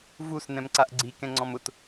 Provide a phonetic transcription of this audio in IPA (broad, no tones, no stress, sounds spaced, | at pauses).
v u s n ɛ̃ m ǀ a ʔ ɡ͡ǀ i k ɛ̃ ŋ͡ǀ ɔ̃ m ʊ t